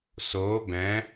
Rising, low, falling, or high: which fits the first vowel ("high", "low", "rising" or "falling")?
rising